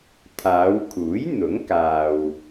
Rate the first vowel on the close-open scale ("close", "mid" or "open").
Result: open